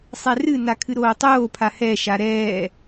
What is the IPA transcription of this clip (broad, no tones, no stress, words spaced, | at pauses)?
sˤɛrɨna kʰɨɾoːtˤoːpʰa hɛʃa ɾɛː